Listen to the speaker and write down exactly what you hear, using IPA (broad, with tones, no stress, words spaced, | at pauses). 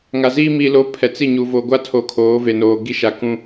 ŋa˨ziː˦ mi˨lo˨˦ pʰɛ˨t͡si˦˨ɲu˨ vo˨ɡʷa˦tʰo˨ kʰoː˨˦ve˨noː˨ ɡi˦ʃa˨ kũ˦